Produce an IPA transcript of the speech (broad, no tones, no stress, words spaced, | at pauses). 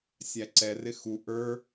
sʲæǀɛrɪ xu ʔə˞